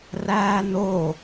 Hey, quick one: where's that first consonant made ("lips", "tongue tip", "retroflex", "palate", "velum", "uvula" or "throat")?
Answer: tongue tip